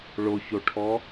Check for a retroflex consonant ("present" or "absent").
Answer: present